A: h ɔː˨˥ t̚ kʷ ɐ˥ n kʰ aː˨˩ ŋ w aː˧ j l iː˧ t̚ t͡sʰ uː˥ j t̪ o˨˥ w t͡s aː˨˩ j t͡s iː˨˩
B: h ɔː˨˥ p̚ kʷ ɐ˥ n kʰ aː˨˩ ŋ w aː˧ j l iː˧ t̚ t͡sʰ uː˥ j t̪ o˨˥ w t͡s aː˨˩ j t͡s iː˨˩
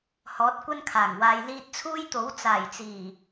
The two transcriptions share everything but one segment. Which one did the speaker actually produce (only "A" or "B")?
A